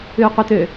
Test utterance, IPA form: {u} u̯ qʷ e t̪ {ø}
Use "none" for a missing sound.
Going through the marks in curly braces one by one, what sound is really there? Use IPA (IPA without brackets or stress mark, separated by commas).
ʉ, ø